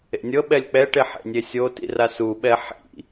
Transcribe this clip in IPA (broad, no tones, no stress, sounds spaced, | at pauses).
ḛ nʲ ɤ ɓ ɛ lʲ k͡p ɛ ʈ e ħ ḛ nʲ e sʲ o t ḭ r a s u ɓ ɛ ħ ḭ